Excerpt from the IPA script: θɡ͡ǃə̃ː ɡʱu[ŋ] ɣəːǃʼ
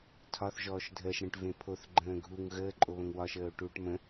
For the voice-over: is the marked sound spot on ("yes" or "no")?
yes